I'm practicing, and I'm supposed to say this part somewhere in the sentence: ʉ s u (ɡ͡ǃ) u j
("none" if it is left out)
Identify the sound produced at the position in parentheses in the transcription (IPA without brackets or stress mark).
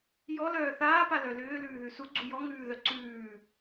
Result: ɡ͡ǀ